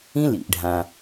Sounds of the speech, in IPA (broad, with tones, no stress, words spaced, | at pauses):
ĩ˦ lḭ˧ʔɖʱã˧